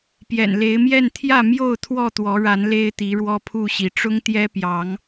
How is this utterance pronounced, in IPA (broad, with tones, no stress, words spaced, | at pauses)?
pjɛ̰˨˩nle˨˦ɪ̯mjɛ˥˨n t̪ʰjä˥˨mjo˥˨ʊ̯ t̪ʰwɔ˥˨t̪wɔ˨˦ɻa˨˦n le˦ɪ̯t̪i˨˦ ɻwɔ˦pʰu˥˨ɕi˨˦ ʈ͡ʂʊ˦ŋt̪jɛ˦ pjɑ˨˦ŋ